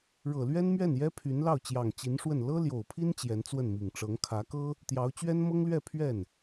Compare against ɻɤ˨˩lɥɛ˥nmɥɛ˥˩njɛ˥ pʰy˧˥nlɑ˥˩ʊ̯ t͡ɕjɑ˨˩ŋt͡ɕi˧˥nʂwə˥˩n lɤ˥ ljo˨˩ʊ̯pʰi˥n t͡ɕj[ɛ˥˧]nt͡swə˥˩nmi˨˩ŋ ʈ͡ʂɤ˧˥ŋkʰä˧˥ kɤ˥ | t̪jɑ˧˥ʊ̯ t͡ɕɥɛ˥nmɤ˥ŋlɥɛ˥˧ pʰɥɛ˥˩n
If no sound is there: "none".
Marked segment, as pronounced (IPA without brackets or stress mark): ɛ˧˥